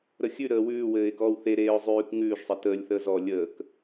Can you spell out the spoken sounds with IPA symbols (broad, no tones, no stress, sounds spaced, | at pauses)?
ɾ ə xʲ ʉ ɾ əː w ʉː w ɘː ɪ̯ k ɔː w θ e ɾ eː ʊ̯ zˤ ʉː k ŋ ʉː ʒ sˤ ɘ t əː lʲ θ əː z ɔ lʲ əː k